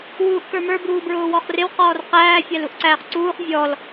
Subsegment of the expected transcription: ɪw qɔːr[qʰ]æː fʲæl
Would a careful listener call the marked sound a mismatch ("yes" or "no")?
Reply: yes